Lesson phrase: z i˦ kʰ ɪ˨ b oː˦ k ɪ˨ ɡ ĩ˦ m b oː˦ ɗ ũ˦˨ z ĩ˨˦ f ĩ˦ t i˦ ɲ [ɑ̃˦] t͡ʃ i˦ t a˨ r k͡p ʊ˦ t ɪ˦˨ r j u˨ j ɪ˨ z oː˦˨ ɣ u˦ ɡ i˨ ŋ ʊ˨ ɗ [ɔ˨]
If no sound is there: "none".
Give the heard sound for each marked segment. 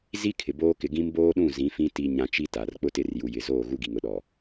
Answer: ã˦, ɔ˨

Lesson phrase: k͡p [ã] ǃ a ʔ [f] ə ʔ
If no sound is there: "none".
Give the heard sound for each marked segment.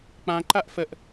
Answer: ã, f

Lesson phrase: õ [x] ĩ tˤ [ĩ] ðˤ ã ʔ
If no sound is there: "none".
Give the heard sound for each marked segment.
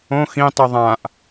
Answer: x, i

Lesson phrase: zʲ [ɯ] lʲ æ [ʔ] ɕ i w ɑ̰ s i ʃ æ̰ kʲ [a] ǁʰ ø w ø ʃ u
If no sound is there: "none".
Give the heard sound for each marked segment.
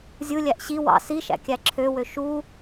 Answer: ɯ, ʔ, æ

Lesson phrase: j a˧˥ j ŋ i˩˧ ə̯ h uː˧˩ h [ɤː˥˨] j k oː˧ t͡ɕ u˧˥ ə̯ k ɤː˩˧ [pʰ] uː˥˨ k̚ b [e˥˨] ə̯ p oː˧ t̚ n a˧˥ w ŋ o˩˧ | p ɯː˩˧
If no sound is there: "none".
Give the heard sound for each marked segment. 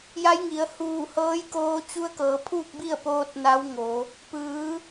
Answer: ɤː˧˥, pʰ, i˥˨

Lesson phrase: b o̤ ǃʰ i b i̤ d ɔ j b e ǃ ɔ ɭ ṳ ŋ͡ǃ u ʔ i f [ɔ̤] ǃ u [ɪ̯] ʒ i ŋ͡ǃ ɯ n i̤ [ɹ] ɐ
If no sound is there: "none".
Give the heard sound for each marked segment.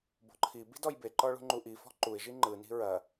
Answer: ɔ̤, ɪ̯, ɹ

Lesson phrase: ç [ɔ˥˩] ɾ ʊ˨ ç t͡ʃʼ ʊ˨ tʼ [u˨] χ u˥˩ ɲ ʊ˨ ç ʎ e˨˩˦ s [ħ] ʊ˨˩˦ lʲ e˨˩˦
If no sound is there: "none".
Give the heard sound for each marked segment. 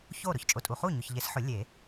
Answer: o˥˩, u˨, ħ

